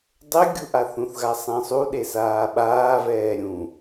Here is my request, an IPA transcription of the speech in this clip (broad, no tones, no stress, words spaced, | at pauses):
dˤɘɡʲu ʔaθũθɣa sˤẽsˤuɗe saːɓaːvɛː ɾʲũ